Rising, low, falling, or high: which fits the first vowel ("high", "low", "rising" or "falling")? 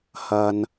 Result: low